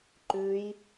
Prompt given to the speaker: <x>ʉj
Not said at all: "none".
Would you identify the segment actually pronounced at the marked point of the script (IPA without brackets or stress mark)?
ǃ